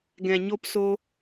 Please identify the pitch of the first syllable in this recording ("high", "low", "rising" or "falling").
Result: low